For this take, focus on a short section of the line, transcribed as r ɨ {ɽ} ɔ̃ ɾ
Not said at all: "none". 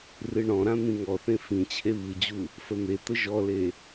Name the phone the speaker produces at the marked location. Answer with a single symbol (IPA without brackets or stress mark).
ɳ